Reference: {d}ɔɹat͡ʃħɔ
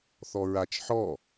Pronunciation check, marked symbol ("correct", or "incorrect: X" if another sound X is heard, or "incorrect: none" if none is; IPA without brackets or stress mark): incorrect: θ